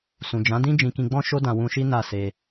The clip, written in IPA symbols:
sũ˨d͡ʒã˨˦ dĩ˦ d͡ʒĩ˧kĩ˧ɡ͡bɔ̃˦ ʃo˦dã˧ wũ˧ʃi˦ na˦˨se˧

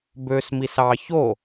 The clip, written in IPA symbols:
bøsmis ɑ ço

